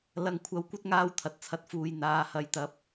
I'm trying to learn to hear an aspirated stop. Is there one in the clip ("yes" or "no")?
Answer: yes